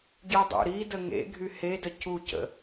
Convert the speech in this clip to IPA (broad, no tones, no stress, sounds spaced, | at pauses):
ɟ y dˤ ṵ ɾ i d ə ŋ ḛ ɡʱ y h e d ə c u c ə̰